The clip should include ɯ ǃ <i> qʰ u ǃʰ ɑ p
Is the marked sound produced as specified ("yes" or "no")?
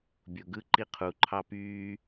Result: yes